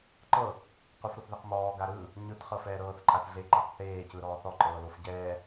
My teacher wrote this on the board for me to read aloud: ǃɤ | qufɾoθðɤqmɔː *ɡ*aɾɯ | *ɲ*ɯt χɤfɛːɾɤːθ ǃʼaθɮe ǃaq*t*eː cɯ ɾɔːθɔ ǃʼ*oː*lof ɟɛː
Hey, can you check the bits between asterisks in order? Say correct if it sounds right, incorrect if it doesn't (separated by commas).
correct, correct, incorrect, incorrect